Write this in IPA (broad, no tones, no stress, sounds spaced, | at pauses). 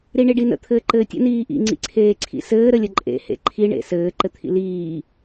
ɾ i ɳ i ɖ i n ə̰ t̪ʰ ɘː ǃ ɘː tʲ ə̰ n iː ʔ ḭ ŋ͡ǀ ḭ ǀʰ eː ǀʰ ḭ s ɘː ɾ ə lʲ ə ǃʼ ḛ h ḛ ǃʰ i ɳ ḛ s ɘː ǃ ɘ t̪ʰ ḭ l iː